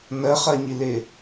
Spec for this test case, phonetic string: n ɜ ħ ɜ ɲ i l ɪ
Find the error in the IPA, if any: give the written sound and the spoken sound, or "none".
ħ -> χ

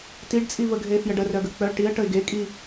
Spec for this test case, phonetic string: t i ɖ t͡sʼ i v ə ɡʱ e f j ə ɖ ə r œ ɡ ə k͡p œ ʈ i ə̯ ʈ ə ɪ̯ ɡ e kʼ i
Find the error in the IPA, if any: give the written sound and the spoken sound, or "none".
none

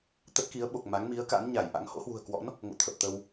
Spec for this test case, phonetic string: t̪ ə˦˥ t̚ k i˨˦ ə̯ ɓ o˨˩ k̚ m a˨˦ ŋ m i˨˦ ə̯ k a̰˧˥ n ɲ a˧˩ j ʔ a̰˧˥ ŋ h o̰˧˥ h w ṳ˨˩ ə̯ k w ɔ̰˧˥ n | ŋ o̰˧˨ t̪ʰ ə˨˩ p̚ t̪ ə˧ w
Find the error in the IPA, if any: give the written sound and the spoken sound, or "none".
none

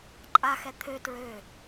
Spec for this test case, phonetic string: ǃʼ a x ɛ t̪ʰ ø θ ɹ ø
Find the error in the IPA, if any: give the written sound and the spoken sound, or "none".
θ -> t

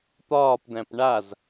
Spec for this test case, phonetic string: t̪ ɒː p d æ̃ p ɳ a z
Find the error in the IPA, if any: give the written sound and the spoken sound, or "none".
none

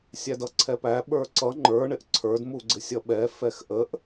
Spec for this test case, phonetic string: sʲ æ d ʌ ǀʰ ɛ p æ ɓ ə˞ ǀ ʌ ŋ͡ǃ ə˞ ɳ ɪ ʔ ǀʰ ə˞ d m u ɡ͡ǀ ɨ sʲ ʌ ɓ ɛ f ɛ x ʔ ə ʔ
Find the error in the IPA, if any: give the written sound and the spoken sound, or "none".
ɨ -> ɪ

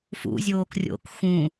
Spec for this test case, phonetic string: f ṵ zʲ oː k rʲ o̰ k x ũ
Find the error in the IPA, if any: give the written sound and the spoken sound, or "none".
none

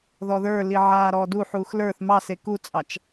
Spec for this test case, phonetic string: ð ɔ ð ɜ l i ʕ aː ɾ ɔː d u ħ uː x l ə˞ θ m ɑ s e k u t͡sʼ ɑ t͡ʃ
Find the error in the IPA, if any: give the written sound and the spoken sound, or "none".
ɜ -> ə˞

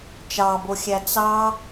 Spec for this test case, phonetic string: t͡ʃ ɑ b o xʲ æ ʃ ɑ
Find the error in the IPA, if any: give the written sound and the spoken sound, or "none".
ʃ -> t͡s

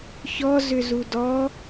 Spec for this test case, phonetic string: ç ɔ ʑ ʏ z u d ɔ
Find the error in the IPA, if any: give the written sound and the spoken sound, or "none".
ʑ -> z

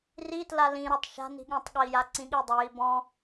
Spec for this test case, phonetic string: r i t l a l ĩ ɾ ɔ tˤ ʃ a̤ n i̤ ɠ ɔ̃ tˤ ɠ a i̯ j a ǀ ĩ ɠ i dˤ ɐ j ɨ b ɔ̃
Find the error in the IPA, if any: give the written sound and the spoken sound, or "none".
ɨ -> i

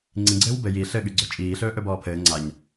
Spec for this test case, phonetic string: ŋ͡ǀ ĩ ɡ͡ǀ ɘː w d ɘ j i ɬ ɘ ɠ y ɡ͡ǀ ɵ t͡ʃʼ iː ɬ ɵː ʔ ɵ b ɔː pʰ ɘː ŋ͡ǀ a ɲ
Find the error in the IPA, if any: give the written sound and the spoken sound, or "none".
d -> b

